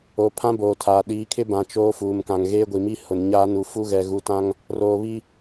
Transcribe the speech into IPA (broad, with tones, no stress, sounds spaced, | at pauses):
o˨ pʰ ã˦ b oː˨ tʰ a˨ ɗ iː˨˦ kʰ ɪ˦ b ã˨ t͡ʃ oː˦ f uː˨ m k ã˨ ŋ ɣ eː˦ ɡʷ i˨ m i˦ h ʊ˨ n ɲ aː˦ n u˨ f u˦ ɣ ɛ˨ ɣ u˨ t ã˦ ŋ | r oː˨ β i˦